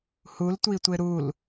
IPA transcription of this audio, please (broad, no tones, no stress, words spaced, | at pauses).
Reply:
hultʷitʷɪ ɾul